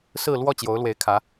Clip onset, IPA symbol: s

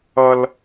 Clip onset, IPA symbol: ʌ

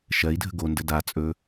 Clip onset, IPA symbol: ʃ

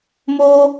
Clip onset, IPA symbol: m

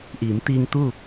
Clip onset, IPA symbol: ʔ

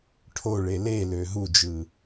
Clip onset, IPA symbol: ʈʰ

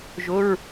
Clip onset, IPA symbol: ʒ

